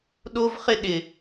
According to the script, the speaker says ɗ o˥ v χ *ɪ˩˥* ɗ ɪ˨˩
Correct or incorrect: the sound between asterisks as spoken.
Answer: incorrect: ɪ˥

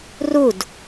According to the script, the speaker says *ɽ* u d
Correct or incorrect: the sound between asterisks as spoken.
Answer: incorrect: r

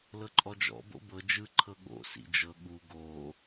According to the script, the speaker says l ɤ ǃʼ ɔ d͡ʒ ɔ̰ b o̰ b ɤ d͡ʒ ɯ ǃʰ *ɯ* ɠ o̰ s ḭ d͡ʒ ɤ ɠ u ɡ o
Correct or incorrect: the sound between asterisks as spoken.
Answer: incorrect: ɤ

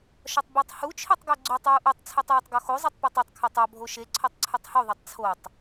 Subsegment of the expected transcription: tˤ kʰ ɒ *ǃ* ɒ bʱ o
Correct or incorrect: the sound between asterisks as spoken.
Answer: incorrect: tˤ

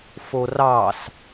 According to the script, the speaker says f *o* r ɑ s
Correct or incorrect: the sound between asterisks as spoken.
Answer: correct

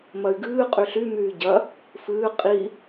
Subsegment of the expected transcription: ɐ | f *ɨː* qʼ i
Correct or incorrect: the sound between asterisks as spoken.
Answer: correct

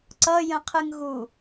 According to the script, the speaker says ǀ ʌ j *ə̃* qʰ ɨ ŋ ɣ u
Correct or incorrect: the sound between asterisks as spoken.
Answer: correct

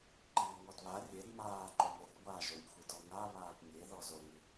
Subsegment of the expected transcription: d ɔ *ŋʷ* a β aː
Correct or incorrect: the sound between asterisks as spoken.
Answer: incorrect: ŋ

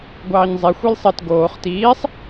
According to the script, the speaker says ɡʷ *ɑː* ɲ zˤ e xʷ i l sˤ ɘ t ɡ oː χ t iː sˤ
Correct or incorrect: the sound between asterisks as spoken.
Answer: correct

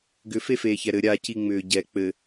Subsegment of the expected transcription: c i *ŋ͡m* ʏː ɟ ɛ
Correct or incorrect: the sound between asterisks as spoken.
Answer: correct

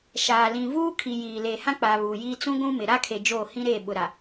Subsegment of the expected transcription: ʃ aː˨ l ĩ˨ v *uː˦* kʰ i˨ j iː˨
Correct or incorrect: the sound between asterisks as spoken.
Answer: correct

